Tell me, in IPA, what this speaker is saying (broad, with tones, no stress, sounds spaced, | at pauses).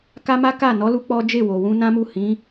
k a˦ m a˦ k a˦˨ n ɔ˨˦ l u˧ k͡p ɔ˦ d͡ʒ e˦˨ w o˨ w ũ˧ n ã˦ m u˦˨ h ĩ˨˦